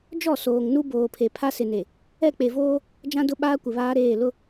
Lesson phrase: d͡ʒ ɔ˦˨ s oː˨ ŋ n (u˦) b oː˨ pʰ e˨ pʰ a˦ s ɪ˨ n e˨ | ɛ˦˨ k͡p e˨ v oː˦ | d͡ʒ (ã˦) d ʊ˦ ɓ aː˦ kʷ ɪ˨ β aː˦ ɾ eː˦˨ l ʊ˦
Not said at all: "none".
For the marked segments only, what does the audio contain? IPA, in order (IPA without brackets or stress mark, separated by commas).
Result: u˦, ã˦